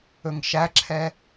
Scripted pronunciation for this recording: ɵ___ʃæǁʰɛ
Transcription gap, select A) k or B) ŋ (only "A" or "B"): B